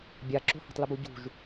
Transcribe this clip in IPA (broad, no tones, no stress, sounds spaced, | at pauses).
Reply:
bʲ a ǁ o̤ h a̤ tˤ l ə b u ɟ ṳ ʒ